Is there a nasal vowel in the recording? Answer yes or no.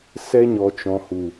yes